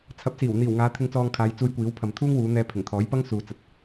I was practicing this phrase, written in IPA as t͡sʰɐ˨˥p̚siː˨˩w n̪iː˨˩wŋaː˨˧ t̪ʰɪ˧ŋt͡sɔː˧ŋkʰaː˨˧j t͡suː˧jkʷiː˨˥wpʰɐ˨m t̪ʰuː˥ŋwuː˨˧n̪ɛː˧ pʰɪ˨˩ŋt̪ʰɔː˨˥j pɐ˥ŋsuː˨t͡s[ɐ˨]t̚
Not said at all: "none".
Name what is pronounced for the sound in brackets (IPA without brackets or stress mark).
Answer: ɐ˨